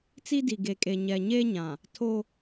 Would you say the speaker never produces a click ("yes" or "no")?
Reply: yes